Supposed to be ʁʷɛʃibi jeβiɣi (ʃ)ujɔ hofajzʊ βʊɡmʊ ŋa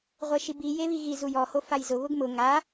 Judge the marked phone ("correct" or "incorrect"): incorrect